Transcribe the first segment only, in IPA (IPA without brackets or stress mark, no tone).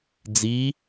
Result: d͡z